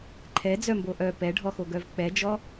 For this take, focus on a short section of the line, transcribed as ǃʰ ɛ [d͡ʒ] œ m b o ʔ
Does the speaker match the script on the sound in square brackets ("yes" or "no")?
no